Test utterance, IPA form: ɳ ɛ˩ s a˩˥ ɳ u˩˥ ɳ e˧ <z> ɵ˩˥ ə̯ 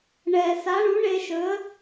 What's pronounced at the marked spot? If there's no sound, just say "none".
ʃ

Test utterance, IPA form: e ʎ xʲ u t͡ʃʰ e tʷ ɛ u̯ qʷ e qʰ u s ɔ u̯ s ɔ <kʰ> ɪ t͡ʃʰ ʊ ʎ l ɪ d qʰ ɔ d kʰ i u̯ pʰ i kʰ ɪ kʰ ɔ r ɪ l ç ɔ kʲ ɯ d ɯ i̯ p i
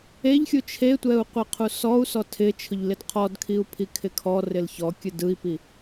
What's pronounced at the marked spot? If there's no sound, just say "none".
tʰ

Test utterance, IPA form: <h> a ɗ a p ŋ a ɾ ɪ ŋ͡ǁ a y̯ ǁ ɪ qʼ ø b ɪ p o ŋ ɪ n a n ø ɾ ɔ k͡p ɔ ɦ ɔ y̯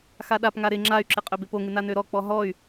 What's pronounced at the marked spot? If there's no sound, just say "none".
x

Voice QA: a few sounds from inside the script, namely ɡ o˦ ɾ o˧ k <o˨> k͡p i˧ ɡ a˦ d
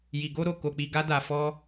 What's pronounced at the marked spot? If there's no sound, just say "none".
o˧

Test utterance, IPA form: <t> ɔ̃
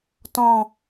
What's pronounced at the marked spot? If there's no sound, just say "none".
t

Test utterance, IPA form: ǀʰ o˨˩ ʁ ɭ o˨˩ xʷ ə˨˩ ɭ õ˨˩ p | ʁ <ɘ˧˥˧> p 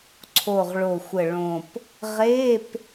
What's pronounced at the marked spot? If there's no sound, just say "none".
e˧˥˧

